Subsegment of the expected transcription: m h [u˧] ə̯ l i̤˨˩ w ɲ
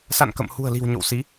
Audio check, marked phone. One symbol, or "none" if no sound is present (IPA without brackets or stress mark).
ṳ˨˩